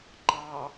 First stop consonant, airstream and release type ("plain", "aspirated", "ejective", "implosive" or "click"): click